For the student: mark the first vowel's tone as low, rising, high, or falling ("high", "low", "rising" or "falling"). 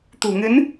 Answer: low